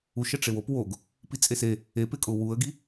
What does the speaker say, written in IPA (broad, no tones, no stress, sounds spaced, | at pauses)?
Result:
u ʃ ɛ ʈ͡ʂ e w o p w o ɡ | p i t͡sʼ e s e | e p ɪ kʼ ʊ w u ə̯ ɡ i